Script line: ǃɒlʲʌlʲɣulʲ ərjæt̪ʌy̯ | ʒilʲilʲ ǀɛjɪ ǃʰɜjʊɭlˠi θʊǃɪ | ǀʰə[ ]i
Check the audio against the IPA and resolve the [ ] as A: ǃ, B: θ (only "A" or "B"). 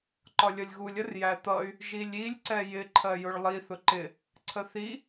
B